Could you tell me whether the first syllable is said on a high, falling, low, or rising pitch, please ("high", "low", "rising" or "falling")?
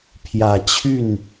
low